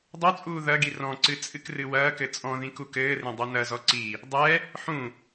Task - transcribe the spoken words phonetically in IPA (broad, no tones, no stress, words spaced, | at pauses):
dˤot͡sʼuː ðɐɡi rɔ̃ǀɨ t͡sʼɨkrɨwɐːkɘ t͡sʼɔ̃ðĩ kukɘːrẽ dˤonɐzɔ ǀi | dˤɛ | ħũ